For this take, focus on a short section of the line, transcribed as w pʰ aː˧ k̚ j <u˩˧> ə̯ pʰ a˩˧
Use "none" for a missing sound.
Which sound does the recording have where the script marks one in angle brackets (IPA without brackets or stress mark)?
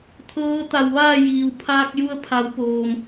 u˧